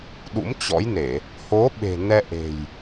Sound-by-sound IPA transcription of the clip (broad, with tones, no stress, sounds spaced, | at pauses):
ɗ ṵ˧˥ m t͡ɕ ɔ̰˧˥ j n e˧˩˨ | h o˨˦ ɓ e̤˨˩ n ɛ˧ ʔ e̤˨˩ j